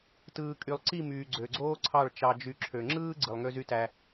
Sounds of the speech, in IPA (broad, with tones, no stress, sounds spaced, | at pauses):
t ɯː˨ kʼ y˨ lˠ ǀ i˦˨ m yː˨ ɡ͡ǀ ø˨ ɡ͡ǀ oː˦ ǀʰ ɑ˦˨ ɭ t͡ʃ ɑ˦ d͡ʒ y˦ ǁʰ ø˨ ŋ͡ǁ ɯː˦ ɡ͡ǀ ɯ˨ lˠ ŋ ø˦ z y˦ t æ˦